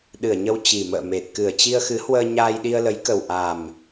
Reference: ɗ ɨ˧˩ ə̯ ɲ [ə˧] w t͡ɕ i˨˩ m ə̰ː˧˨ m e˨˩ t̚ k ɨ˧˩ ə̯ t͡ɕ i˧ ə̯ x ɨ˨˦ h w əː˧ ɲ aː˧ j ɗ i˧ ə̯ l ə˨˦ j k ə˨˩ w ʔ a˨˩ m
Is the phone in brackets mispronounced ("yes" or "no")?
no